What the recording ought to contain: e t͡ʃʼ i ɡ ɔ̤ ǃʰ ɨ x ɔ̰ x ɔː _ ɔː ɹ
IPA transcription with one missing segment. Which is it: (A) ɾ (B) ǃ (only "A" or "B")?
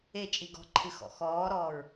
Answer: A